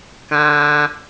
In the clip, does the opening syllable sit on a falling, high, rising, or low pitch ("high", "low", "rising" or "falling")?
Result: low